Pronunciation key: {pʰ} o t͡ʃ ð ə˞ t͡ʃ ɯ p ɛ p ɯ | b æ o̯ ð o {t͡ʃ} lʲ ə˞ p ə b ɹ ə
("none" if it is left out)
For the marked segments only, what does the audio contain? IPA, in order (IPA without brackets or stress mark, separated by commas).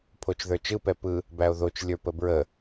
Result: pʰ, t͡ʃ